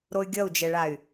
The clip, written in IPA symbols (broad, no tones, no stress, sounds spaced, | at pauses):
ɾ o y̯ ɡʲ ʌ u̯ d͡ʒ ɛ ɭ a y̯